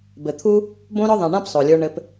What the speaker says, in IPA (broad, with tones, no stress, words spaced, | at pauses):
bɘ˨t̪ʰu˦ | bõ˧ɾɔ˧ðˤã˨ ɳã˦psˤo˨lʲə˞˧ ɳɘ˧p